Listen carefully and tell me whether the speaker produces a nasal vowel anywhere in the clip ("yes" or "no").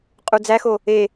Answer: no